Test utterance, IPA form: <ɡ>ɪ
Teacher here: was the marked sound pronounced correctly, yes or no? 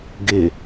yes